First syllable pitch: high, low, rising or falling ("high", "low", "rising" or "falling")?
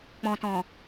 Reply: low